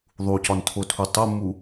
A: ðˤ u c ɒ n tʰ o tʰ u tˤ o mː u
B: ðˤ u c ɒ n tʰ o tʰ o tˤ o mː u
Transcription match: A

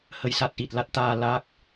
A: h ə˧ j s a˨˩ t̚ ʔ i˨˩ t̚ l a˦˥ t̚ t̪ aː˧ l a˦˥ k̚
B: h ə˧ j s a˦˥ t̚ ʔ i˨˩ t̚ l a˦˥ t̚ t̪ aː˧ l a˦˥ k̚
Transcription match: B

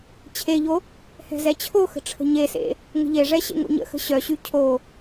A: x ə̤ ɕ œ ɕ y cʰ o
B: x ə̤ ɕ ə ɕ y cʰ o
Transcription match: A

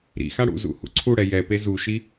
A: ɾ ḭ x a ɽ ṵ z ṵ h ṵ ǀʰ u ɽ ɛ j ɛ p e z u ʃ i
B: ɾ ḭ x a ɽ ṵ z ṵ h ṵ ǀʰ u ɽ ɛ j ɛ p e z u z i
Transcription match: A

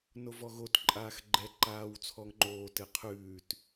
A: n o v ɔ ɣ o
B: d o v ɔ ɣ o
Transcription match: A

